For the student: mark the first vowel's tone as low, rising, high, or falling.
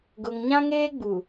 low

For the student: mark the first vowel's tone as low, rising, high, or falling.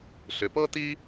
low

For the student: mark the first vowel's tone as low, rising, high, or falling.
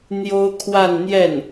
high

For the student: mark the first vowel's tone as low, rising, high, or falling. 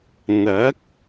rising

